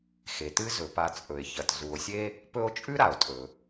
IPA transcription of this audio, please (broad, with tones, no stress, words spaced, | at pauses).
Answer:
xe˩tɨ˦ zɵ˩pa˨t͡sʼɵ˩e̯ çɐ˩t zu˨o̯sʲe˥ | pɵ˦o̯t͡ʃʼʉ˥ ɾa˩o̯tʼɵ˩